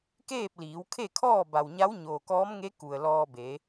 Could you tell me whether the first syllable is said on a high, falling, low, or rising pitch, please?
falling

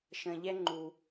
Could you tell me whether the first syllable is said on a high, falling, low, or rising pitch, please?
low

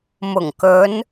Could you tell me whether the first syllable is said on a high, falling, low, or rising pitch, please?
low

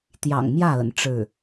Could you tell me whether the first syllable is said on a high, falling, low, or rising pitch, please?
low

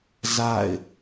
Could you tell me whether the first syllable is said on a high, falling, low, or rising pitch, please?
falling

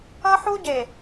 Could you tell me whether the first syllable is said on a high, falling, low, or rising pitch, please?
high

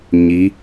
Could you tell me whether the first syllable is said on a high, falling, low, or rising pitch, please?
rising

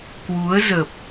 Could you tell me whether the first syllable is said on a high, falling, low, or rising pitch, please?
rising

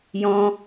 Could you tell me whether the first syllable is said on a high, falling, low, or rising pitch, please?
high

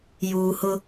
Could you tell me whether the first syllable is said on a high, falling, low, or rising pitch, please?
low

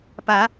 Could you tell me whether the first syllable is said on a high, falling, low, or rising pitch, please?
low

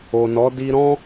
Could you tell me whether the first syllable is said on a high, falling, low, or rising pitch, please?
low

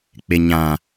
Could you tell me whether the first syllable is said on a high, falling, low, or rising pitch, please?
low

